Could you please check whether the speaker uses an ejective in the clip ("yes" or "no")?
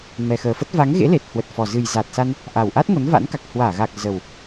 no